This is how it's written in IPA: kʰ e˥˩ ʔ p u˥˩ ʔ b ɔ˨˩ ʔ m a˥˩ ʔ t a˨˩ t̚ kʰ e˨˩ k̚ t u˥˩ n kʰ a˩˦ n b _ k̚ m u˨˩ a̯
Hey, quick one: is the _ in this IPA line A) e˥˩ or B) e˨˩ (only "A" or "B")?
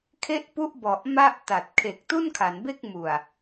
A